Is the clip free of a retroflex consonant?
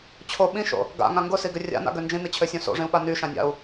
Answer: no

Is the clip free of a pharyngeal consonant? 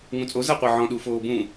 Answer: no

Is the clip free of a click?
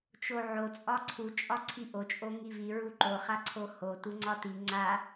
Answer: no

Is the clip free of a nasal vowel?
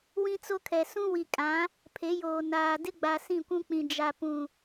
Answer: no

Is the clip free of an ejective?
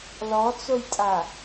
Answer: no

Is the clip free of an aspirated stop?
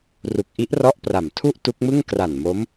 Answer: no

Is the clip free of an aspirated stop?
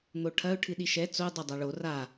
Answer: no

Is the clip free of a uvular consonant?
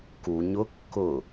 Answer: yes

